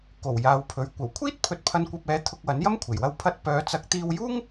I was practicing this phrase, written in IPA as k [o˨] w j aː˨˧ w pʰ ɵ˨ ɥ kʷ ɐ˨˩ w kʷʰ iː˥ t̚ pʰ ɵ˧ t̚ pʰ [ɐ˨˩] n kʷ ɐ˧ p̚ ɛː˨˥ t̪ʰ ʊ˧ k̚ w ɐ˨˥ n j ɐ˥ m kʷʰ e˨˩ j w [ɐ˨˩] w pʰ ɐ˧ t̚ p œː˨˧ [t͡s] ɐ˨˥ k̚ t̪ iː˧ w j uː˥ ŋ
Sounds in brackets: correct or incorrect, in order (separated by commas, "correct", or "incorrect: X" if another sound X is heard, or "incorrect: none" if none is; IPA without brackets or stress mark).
incorrect: o˨˩, incorrect: ɐ˧, incorrect: ɐ˧, correct